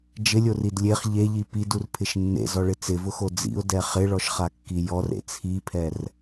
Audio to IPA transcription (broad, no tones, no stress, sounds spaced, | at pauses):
d͡ʒ ɪ lʲ o r i d lʲ e χ ʎ e ʎ i p i d u r pʰ ɪ ʃ nː ḛ z ɔ ɭ ɪ t͡s ɪ v ʊ x o d͡z ḭ ʊ̯ d ɛ χ ɪ ɭ ɔ ʃ χ a kː i j ɔ r ḛ t͡sʰ i pʰ ɛ r